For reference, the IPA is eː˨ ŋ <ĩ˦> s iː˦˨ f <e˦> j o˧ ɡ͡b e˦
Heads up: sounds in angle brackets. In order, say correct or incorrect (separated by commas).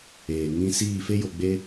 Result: correct, correct